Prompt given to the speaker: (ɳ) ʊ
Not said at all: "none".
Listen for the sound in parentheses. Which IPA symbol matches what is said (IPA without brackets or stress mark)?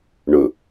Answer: ɳ